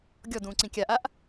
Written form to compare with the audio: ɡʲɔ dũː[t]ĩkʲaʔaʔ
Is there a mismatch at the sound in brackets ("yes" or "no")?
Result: yes